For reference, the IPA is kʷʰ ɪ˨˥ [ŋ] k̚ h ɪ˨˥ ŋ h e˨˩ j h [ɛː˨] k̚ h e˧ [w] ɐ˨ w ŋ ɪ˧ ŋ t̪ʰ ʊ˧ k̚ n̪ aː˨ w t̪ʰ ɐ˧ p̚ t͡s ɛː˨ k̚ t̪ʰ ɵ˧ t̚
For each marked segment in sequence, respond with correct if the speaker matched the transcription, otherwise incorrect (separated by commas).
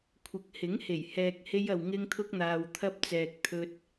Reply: incorrect, correct, incorrect